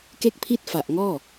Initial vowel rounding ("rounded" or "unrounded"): unrounded